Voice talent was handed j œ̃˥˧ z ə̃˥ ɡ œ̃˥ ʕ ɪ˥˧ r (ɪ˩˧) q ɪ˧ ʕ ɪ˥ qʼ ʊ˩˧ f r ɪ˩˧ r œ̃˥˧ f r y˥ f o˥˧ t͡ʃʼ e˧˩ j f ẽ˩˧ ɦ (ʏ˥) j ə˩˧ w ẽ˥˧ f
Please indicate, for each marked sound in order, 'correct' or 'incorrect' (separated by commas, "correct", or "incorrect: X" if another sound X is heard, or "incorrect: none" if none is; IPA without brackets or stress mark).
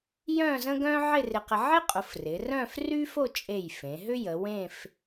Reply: incorrect: ɪ˧, correct